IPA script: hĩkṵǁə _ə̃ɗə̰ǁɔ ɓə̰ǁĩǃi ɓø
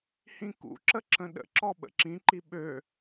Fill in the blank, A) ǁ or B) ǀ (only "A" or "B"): A